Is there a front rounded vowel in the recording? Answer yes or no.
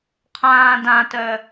yes